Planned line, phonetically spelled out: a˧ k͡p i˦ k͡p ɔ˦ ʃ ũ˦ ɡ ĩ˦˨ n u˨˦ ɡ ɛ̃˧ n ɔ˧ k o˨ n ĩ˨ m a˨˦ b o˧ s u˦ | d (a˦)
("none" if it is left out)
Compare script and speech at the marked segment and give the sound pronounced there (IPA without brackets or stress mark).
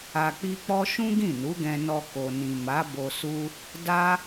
a˦